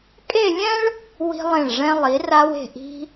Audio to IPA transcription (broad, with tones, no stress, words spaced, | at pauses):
kʼe˥˧lʲɛ̃˥ɭ | wi̤˧lˠẽ˧˩ɭʐɛ̃˧lˠi˩˧ ra˧we̤˧˩ ʔi̤˧